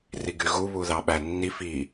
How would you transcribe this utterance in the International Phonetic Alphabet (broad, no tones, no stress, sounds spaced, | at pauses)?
r i ɡ y ɣ u β u ð ɑ ɓ æ nː i f i